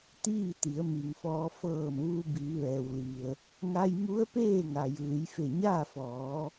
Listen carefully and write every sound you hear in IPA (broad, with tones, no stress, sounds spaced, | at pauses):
t̪ iː˥˨ t̪ i˩˧ ə̯ m i˩ ŋ f ɔː˧ f ɤː˧˩ m ʋ u˧ b i˩˧ ʋ ɛː˩ w l i˩ ə̯ | ŋ a˧ j m u˧˥ ə̯ p eː˥˨ ŋ a˩ j ɯː˩˧ j f e˧˩ ɲ aː˥˨ f ɔː˩˧